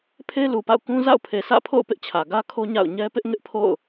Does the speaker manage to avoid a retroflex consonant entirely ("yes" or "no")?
yes